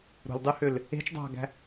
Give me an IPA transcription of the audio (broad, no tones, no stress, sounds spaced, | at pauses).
ɾ ṳ l dˤ ʉ h ø l | e̤ t͡ʃ dˤ ɑ̤ ɡ æ̤